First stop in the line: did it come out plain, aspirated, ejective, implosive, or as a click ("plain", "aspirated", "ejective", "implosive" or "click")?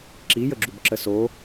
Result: click